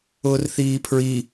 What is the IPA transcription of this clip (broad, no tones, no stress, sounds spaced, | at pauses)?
ʊː r θ iː pʰ ɹ i